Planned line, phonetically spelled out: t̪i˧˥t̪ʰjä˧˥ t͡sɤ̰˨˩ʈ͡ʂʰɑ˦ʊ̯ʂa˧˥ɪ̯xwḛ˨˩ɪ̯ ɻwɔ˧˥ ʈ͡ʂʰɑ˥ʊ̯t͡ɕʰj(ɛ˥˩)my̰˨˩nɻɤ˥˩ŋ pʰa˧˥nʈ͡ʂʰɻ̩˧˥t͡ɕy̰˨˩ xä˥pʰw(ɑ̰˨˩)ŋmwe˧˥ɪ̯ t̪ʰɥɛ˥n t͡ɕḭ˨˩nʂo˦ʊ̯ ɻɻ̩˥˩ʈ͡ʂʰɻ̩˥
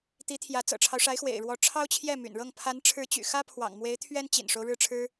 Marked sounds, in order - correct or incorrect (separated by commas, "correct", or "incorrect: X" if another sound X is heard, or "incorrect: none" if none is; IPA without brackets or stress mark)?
correct, correct